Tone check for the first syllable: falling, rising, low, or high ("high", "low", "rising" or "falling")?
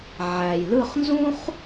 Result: low